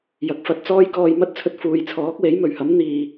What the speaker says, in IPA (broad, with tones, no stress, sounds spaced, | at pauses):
j ɐ˨ k̚ f ɐ˧ t̚ t͡s ɔː˥ j k ɔː˧ j m ɐ˥ t̚ t͡sʰ ɵ˧ t̚ f uː˨ j t͡sʰ ɔː˨˥ k̚ w e˨˥ j m ɵ˨˩ ɥ h ɐ˨˥ m n̪ iː˨˩